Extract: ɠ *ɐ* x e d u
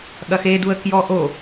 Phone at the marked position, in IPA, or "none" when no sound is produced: ɐ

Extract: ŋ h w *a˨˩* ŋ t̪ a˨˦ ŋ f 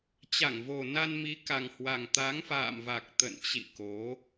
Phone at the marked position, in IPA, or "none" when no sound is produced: a˨˩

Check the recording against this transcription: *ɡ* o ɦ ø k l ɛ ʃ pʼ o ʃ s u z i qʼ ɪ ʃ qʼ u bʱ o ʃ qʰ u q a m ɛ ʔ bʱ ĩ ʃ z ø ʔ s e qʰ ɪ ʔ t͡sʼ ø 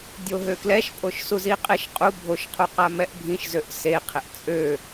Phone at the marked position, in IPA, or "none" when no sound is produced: dʲ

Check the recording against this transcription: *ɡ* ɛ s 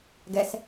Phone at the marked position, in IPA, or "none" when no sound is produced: ɡ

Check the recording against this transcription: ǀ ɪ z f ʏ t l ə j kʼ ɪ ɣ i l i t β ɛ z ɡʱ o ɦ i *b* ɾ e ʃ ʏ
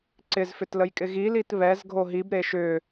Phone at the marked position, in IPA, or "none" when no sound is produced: b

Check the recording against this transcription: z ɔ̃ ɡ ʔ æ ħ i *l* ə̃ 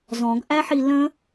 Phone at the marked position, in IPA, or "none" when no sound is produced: l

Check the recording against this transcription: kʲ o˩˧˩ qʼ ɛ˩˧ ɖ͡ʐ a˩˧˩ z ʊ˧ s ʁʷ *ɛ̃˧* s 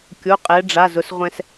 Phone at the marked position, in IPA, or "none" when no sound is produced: ɛ̃˧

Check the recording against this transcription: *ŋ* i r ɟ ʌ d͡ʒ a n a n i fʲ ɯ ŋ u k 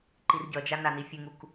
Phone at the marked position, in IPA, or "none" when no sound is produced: ǃ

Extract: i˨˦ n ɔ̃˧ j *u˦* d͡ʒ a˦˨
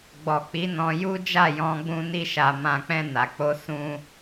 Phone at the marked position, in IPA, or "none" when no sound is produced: u˦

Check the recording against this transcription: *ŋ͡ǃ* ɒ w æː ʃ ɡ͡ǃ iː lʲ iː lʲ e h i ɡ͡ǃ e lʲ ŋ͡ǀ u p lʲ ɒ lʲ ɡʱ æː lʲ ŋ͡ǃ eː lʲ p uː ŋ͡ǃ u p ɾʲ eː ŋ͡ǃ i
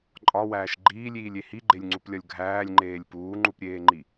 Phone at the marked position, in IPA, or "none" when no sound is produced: ǃʼ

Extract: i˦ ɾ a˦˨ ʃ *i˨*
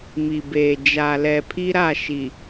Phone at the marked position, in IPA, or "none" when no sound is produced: i˨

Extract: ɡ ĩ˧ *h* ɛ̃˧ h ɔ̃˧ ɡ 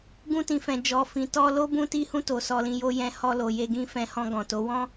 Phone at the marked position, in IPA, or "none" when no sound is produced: f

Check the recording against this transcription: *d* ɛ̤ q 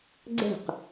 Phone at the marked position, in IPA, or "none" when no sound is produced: ɡ͡ǀ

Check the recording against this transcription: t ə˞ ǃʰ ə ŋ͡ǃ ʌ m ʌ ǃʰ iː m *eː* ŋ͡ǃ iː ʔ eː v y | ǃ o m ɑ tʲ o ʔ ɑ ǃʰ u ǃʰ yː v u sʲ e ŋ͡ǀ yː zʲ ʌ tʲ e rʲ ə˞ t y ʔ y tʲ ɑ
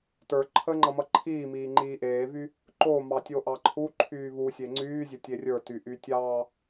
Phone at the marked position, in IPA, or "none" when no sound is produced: iː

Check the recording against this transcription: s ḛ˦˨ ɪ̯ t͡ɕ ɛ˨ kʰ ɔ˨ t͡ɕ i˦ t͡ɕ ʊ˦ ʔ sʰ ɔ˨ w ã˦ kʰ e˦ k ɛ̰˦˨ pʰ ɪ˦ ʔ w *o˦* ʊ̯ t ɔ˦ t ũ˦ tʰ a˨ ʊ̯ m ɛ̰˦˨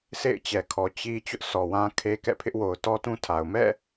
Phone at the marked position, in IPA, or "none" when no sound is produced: o˨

